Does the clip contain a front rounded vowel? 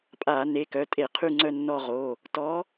yes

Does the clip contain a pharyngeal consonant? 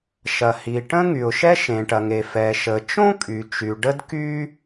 no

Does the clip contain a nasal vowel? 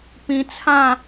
yes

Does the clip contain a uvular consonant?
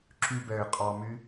yes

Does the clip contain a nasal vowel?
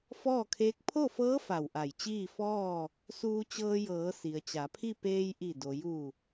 no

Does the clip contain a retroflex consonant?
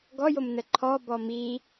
no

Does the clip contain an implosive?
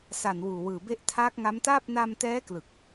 no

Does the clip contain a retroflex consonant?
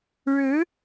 yes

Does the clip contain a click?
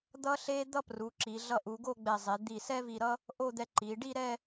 yes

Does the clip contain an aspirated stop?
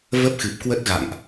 no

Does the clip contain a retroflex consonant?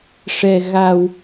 yes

